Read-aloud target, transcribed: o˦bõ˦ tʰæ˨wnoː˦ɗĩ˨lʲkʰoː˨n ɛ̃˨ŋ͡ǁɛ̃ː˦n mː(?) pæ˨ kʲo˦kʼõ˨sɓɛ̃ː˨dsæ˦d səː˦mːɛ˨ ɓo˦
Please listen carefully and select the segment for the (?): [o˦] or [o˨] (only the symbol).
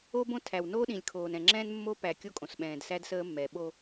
o˦